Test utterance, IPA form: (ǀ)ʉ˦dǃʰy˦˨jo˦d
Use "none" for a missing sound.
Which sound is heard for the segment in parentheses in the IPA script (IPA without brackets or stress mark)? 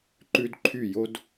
ǃ